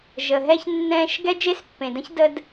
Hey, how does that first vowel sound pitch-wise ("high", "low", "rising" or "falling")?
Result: low